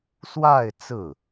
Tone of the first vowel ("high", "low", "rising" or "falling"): falling